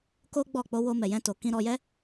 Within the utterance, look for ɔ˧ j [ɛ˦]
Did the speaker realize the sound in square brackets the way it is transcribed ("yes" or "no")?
yes